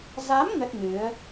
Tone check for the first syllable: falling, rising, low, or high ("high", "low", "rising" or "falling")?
rising